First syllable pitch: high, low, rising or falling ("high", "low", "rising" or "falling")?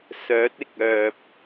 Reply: rising